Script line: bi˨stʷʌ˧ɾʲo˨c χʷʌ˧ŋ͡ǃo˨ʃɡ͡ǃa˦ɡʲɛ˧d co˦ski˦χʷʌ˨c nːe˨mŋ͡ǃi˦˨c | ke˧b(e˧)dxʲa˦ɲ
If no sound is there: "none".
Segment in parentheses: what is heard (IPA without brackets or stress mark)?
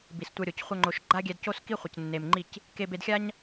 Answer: e˧